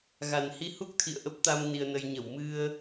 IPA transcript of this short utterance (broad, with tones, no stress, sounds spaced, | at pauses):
ɣ a˨˩ n h i˧ h u˦˥ k̚ t̪ʰ ḭ˧˨ ə̯ ʔ ə˦˥ p̚ t̪ a˧ m n i˧ ə̯ n ə˧ j ɲ ə˧˩ w m ɨ˧ ə̯